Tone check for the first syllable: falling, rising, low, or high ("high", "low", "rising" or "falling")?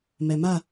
low